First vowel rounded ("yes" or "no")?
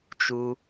yes